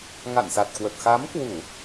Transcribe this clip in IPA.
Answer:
ŋa̰˧˨n sa˨˩t̚kwə˨˩t̚ xa˨˦mkwu˧˩˨

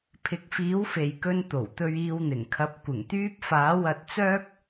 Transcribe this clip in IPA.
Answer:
pʰɪ˨˥k̚fiː˨˥wfe˨jkɵ˧n t̪o˨˩wt̪ɵ˧ɥ iː˧wn̪ɪ˨˩ŋkʰɐ˨˥p̚ kʷɪ˨˩ŋt̪yː˥p̚ faː˨˥wɐ˧t̚t͡sœː˥k̚

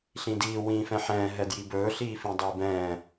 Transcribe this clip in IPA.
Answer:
ɬĩdiː wĩːfɛ̃ħɛ̃ː ɦɛdjibɵː ɬiːfĩdˤiːbɛ̃ː

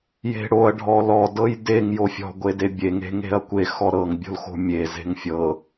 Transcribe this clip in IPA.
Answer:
je̤ɽoɐ̯ ɖʱɔlɔdɤj deŋ jofʲɔ̤ ɡʷedebʲeŋe̤ ŋe̤ɐ̯kʷe xɔɾɤŋbʲo̤lxo̤ mʲe ze̤ŋfʲɤ

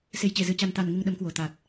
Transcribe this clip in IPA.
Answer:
se˧˩jt͡ɕe˧˩zɨ˨˩t͡ɕa˨˩n t̪a˨˩n ŋɨ˧ŋɗə˨˦mkwo˨˩ t̪a˨˩t̚

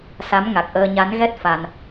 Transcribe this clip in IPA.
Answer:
sa˨˦m ŋa˨˩k̚ʔəː˧ ɲa˨˦nɣɛ˦˥t̚ fa˧n

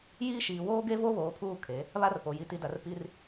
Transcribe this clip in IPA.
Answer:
jiː˦ʃiː˨ woː˦ɡe˦ vo˦βoː˨pʰuː˦˨ kʰe˨˦ | βa˦rpo˨ ji˨ti˨da˨r pi˦r

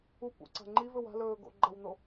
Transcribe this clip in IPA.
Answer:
up ṵǀa̤ŋ͡ǃivɵ wa̤lɵː ɡo̰ɡ͡ǃɐwno

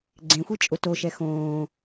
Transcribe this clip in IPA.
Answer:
ɡ͡ǀẽxʷi t͡ʃʼʊtoʃɛ xõː

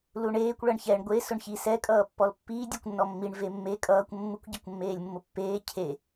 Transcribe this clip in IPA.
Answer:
luɳeːkʷ ɭʌɳçɛɳ ɡʷe sʊɳçi sɛ kʼʌːpːɔlpːiː dʲɛkʷnːɔmːiɳ vemːe kʼʌːkʷ mːukʷ ɟʌkʷmːeːlʲmːʊpːeː cʰe

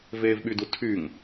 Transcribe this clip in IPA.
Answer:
veːvɓydutʰyŋ

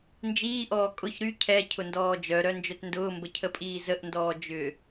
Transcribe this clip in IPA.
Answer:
nd͡ʒiːʔɔː kʼʊç ɾy cʰɛ cʰʊndɔːd͡ʒœɾœ nd͡ʒœtndʊːmbə cʰəpʼiːzəʔndɔː d͡ʒʏ

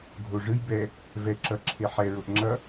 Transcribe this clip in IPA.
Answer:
ɡʱo ʐɯj bɛ | vɛ ǁʌǁʰe ħɛɹoʔ ŋ͡ǁʌ

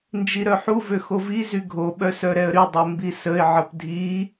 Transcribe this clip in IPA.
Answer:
nd͡ʒiɾœħuvø xovizy ɡʱoɓœ sœɾɛə̯ɾydˤo mbisəɪ̯ʕəp dʱi

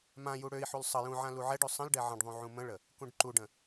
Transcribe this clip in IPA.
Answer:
mãju ɽøi̯ħul sˤə jũʕã luʕɛɖø sˤə̃lɖɛ ʕə̃ɖðˤũ ʕũmə̃ɭə | kũɖǃuɖə̃

